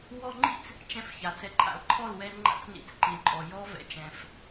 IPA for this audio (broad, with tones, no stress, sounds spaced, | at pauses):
w ɔ˧ ŋ͡ǃ ḭ˦ t͡s | t͡ʃ ɛ̃˧ f ç a˨ t͡s ɛ˨ ǃʼ a̰˨ l ǃʰ ɔ˦˨ l w ɛ˧ ŋ͡ǃ a̰˧ t͡s n ḭ˨˦ t͡s ǃ i˨ l ǃʼ ɔ˨ j ɔ˦ v ɛ̰˧ t͡ʃ ɛ̃˧ f